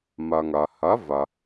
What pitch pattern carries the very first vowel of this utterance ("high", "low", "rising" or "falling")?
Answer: low